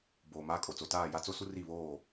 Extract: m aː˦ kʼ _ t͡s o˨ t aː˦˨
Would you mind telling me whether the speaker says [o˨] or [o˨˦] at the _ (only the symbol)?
o˨